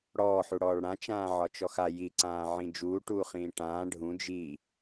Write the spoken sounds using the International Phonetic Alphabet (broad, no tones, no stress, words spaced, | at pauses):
ɽɔːħuɽɔːɭ ɽãt͡ʃãː ʕɒt͡ʃɔxa jiǀãːʕĩ d͡ʒuːʈuːχĩː ʈãː ɖʱũ d͡ʒi